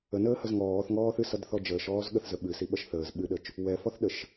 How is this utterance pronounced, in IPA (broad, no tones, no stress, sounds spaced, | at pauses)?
ə n əː h ə z ŋ ɔː θ ŋ ɔː θ ɨ s ʌ d θ ɔ d͡ʒ əː ʃ ɔː z ɠ ə θ z ə ɓ ɨ s i ɓ ʌ ʃ θ əː z ɓ ɨ ɗ ə t͡ʃ | w ɛ f ɔ θ ɗ ə ʃ